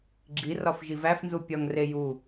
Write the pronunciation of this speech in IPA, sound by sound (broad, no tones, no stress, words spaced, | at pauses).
ɡ͡ǁi rɒfʒivæfnzu pʲɒŋre ju